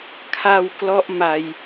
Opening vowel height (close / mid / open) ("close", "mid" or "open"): open